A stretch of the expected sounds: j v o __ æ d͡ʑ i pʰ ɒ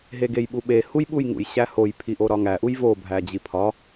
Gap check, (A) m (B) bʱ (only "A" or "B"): B